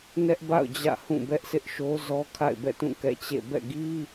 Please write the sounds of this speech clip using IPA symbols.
n ɛ˦ ʔ b a̰˦˨ ʊ̯ d͡ʑ ä̰˦˨ h ũ˦˨ b ɛ˦ ʔ s ɪ˦ ʔ ʃ o˦ z ɔ˦ kʰ a̰˦˨ ɪ̯ b ɛ̰˦˨ t ũ˦˨ k ɛ̰˦˨ t͡ɕ ḛ˦˨ b ɛ̰˦˨ ɡ i˦

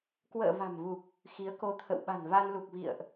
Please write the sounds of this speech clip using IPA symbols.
k w ə̰ː˧˨ v a̤˨˩ m v u˨˩ k̚ | x i˨˦ ə̯ k o˧ t̪ʰ ə̰˧˨ w ɓ a̤˨˩ n v a˧ n l u˨˩ k̚ v ḭ˧˨ ə̯ ʔ

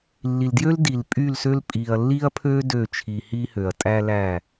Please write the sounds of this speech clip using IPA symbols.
lː i˨ l d j ø˦ l d i˨ l pʼ y˦˨ l s ø˦ l pʼ i˨ ɐ̯ lː i˦ ɐ̯ pʰ ø˦ d ø˦˨ t͡ʃʰ i˨ h i˦ h ø˨ ɐ̯ tʼ æ˦ l æ˦˨

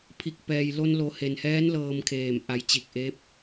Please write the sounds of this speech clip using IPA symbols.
pʰ i˧˩ k̚ p ɛː˩ j l o˧ n l o˩˧ h e˩ n h ɛː˧˥ n l ɤː˧ m kʰ eː˧˩ m ʔ a˩˧ j t͡ɕ i˧˩ k̚ ʔ eː˧˥ p̚

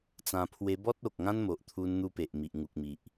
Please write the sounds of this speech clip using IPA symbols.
t͡s ã˧ pʰ w e˧ b ɔ˦ t̚ o˨ k̚ ŋ ã˦ n m o˨ ʔ t̪ʰ u˧ n n̪ u˧ p e˨ ʔ m i˨ ʔ ŋ u˨ k̚ m i˨ ʔ

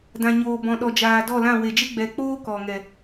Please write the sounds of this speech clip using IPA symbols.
d ã˨ ɲ oː˨ b ɔ̃˨ ɗ ɔ˨ d͡ʒ aː˨ d ɔ˦˨ l ã˦˨ w e˨ d͡ʒ e˦ ɡ͡b ɛ˨ k͡p oː˦ k ɔ˨ ŋ ɛ˨

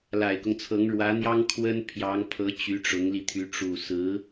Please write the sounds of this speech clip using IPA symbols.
l a˨˩ ɪ̯ k ʊ˦ ŋ t͡sʰ ɤ˧˥ ŋ ɻ w ä˧˥ n̪ j ɑ˥ ŋ kʰ w ə˥ n pʰ j ɑ˧˥ ŋ pʰ ɤ˧˥ t͡ɕ y˧˥ ʈ͡ʂ ʊ˧˥ ŋ l i˧ t̪ʰ y˧˥ ʈ͡ʂ u˨˩ s ɹ̩˧˥

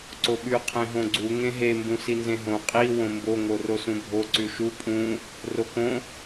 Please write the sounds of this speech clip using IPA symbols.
ǀ o ɓ ʉ qʰ ẽ ɦ õ ɡ͡ǀ u ŋ ẽ ɦ e m b ũ s i n z ẽ ɦ õ qʼ i w õ m b o ŋ o r o s ũ bʱ o ǀ ʉ ʃ u pʼ ũ | r o k õ

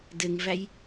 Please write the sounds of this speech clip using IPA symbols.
d ɘ ŋ v æ j

